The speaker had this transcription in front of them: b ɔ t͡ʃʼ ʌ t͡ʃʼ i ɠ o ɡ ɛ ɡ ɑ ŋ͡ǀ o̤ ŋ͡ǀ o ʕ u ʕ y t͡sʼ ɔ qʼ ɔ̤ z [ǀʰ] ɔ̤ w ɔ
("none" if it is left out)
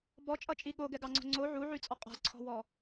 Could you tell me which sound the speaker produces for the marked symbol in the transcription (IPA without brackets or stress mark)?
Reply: ǀʰ